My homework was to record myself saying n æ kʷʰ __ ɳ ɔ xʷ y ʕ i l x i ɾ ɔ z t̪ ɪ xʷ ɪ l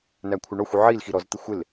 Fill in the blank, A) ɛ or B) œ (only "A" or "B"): B